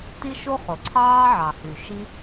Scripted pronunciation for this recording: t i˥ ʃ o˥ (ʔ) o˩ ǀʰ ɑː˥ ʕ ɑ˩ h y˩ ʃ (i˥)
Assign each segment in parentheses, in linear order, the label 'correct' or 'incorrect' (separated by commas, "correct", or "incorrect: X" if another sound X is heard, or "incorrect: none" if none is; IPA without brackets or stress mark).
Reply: incorrect: χ, correct